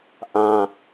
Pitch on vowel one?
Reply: high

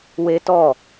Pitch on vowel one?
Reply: high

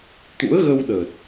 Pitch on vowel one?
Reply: rising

